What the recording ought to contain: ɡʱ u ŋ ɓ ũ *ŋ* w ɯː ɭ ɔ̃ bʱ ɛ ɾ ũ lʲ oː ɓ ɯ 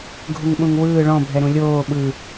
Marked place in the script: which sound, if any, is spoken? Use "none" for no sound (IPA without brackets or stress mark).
ŋ